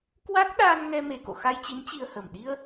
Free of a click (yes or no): yes